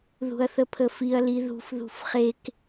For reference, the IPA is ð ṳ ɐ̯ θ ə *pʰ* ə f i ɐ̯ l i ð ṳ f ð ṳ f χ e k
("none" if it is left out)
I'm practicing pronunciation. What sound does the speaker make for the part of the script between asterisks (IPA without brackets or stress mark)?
pʰ